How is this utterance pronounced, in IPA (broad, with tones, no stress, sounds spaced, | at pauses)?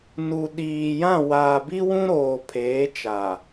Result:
n u˨ ɗ iː˨ j ã˦˨ w aː˨ b i˦ w ũ˦ ɾ oː˨ pʰ eː˨˦ t͡ʃ a˨